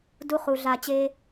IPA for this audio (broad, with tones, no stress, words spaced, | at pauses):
du˨ χu˨ ɮa˨ t͡ɕe˧